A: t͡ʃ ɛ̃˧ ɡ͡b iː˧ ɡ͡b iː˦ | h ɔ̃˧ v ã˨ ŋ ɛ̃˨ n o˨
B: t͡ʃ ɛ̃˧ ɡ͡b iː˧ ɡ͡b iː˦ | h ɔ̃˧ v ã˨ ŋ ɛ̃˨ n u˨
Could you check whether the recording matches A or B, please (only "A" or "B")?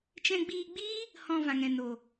A